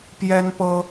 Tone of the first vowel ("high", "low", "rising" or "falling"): high